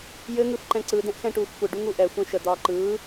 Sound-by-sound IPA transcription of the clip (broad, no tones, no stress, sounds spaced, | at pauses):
j ɘ ŋ ɯ f ǃ ɛ̃ ǀ ɯ d ɛ̃ ʔ x ɛ̃ ʈ uː x kʷ ɘ ɖ u ŋ u ʔ ɛ xʷ ɛ̃ ʃ ə d̪ ɒː ǃ ɯː